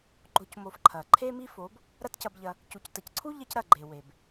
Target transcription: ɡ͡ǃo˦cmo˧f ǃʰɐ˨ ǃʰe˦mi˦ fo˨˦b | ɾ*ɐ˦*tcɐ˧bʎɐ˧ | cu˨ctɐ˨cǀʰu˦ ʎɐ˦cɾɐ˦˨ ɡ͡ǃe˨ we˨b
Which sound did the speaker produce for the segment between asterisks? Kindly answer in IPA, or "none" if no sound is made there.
ɐ˦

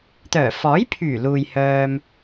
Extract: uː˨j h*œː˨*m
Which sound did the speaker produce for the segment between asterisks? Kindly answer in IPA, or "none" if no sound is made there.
œː˧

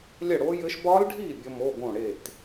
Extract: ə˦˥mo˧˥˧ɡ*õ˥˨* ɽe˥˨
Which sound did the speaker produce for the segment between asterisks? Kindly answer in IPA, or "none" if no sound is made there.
õ˥˨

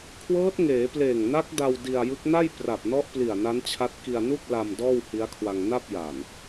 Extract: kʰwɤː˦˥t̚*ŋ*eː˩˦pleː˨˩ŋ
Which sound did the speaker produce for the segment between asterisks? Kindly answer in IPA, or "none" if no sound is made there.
ŋ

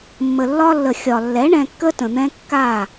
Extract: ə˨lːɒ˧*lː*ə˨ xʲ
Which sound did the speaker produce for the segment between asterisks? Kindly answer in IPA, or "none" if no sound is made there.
lː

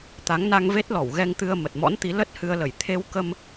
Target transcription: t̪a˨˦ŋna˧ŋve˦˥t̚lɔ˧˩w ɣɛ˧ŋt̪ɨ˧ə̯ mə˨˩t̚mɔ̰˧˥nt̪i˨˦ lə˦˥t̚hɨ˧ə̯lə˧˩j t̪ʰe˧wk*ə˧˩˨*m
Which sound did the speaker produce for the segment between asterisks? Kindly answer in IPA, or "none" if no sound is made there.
ə˧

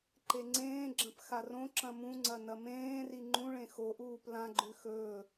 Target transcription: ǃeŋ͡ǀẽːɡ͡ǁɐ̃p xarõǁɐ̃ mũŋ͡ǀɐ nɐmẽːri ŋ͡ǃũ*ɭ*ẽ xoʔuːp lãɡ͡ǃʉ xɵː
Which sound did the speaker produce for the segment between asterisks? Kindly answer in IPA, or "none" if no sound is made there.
ɭ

